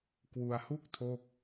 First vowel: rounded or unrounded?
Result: rounded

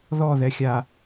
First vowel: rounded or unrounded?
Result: rounded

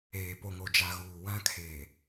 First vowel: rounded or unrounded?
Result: unrounded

